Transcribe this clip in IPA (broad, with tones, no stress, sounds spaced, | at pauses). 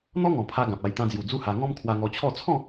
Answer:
n̪ ɔ˦ ŋ ɔ̃˨˩ pʰ a˧ ɡ ã˨ p̚ a˧ j t̪ ã˧ d͡z j u˨˩ d͡z u˦ h a˧ ŋ ɔ̃˦ m kʰ w a˧ ŋ ɔ˧ t͡ɕʰ ɔ˥˧ t͡sʰ ɔ̃˥˧